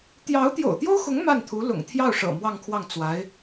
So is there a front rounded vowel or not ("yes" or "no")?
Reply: no